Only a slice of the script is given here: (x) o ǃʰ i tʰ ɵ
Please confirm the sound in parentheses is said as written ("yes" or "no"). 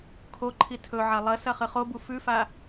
no